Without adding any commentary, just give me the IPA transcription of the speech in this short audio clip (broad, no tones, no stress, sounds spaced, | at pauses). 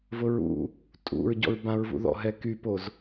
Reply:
v ʊ ɹ ṵ | tʼ ṵ ɹ ɟ ɔ̰ ɹ b ã ɹ v ṵ ð ɔ̰ ɦ ɛ k y p o z